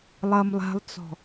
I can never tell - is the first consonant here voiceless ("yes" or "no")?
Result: no